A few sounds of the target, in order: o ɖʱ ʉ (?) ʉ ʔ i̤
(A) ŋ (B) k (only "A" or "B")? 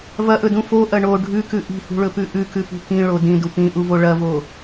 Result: B